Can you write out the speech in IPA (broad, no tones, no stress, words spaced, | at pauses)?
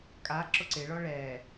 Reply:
kʼa ǁʊǀɪɭɔ ɭɛ